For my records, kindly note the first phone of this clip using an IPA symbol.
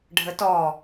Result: ɖʱ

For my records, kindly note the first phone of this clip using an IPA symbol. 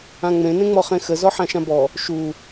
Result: ã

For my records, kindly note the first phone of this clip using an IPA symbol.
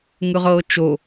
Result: ŋ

